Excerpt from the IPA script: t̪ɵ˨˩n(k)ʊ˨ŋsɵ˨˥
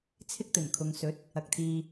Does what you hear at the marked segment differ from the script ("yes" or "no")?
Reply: yes